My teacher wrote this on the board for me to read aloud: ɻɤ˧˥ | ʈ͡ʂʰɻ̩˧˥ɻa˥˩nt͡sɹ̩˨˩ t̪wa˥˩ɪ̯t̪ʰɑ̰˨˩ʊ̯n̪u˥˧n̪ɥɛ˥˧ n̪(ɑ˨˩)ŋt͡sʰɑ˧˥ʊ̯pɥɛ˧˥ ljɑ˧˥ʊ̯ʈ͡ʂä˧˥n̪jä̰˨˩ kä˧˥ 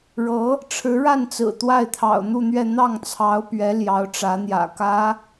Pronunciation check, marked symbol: incorrect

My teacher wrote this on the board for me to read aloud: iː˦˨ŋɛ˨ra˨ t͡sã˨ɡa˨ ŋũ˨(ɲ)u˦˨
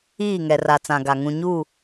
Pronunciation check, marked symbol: correct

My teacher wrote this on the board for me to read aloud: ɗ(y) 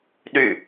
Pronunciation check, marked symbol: correct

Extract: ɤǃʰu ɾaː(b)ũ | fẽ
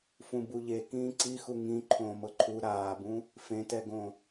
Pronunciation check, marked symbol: correct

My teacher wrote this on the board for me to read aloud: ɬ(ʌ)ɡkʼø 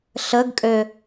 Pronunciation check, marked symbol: incorrect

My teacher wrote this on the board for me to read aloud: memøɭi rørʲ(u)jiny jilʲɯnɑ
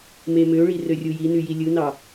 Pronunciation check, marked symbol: correct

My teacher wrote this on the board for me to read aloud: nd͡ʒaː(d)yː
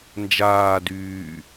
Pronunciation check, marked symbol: correct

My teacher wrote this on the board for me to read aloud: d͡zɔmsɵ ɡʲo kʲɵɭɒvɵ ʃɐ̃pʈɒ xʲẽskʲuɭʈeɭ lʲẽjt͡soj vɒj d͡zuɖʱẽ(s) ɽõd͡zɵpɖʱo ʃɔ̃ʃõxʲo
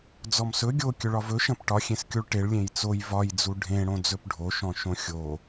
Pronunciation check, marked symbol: incorrect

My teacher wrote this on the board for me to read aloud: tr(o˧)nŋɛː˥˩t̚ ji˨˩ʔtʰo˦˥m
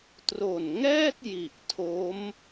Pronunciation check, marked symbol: incorrect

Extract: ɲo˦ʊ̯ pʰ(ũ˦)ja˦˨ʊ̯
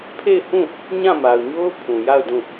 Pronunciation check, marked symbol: incorrect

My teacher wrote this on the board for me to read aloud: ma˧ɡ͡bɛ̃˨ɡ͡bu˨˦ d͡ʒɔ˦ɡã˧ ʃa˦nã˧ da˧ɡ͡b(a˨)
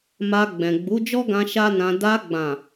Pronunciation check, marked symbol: incorrect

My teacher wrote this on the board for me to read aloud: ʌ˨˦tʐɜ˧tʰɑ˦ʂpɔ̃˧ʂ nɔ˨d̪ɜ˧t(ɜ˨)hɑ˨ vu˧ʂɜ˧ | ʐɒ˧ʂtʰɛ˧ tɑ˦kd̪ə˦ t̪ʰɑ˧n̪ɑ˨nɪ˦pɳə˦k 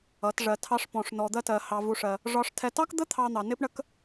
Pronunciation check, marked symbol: correct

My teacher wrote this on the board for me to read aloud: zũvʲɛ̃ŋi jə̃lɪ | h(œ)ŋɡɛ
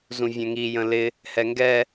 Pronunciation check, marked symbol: incorrect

